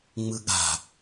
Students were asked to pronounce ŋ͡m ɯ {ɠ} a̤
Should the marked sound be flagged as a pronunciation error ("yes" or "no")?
no